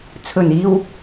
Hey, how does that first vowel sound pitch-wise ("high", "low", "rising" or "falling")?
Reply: low